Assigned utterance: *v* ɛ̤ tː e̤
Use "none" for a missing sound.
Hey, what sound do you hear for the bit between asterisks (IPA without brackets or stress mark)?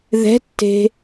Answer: ð